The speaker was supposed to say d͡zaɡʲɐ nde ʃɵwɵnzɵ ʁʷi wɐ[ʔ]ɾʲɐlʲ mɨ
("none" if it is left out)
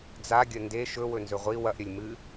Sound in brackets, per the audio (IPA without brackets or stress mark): ʔ